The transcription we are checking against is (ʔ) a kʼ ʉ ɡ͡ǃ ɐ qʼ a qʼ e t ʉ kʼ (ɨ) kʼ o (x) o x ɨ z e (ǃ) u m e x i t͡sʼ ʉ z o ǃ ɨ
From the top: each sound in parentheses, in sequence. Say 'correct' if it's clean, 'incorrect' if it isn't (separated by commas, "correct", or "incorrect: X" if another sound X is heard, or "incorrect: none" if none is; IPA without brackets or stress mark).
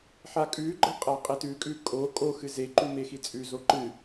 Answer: incorrect: ħ, incorrect: ʉ, incorrect: kʼ, correct